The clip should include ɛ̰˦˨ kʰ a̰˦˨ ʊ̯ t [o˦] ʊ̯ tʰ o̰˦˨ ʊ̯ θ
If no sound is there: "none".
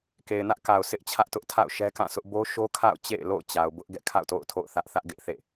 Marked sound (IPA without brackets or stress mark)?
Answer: o̰˦˨